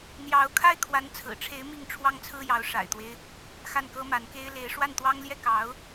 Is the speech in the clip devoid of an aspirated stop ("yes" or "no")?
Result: no